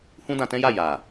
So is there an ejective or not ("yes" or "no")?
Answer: no